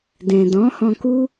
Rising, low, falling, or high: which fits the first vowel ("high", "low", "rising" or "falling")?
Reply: low